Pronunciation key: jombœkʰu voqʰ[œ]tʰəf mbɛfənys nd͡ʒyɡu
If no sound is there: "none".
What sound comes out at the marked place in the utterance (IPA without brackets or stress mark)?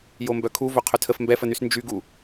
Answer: œ